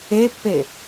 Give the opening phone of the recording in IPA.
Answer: e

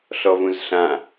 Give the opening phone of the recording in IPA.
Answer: ɬ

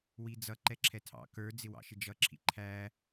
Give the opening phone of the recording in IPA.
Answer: w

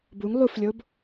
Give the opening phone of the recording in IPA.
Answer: b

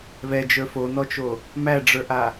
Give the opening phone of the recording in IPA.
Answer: β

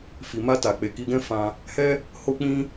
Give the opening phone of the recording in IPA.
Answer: f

